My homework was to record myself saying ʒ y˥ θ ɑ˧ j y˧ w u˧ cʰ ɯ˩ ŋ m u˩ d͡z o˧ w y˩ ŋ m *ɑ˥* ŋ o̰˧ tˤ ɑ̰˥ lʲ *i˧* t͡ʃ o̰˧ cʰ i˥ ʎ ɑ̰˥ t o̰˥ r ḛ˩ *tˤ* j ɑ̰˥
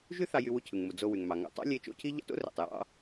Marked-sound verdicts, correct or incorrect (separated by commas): incorrect, incorrect, correct